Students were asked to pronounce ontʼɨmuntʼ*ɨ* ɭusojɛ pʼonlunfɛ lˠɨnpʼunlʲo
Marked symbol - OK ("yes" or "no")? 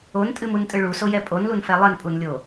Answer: yes